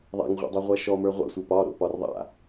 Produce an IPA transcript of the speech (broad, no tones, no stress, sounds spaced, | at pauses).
ðˤ a̰ ŋ ʁʷ a̰ dˤ o ʁʷ a ʃ ɔ m ə˞ ʁʷ a̰ sʷ ə˞ p ɒ ɾ o̰ p ɒ r ðˤ a̰